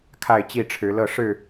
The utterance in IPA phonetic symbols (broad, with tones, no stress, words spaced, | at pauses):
kʰa˥˨ɪ̯t͡ɕi˥˨ʈ͡ʂʰɻ̩˨˦lɤ˥˨ ʂɻ̩˥˨